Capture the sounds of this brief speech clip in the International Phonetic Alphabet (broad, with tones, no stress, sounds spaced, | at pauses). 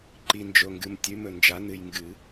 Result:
ǃ i˨ n d͡ʒ o˨ ŋ ɡ ɨ˨ m tʲ ʉ˨˦ m ɵ˨ n d͡ʒ a˨˦ n ɨ˨ j ŋ ɡ ɨ˨˩˦